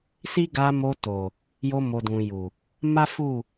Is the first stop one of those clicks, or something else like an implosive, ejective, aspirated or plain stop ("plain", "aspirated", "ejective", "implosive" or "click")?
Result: plain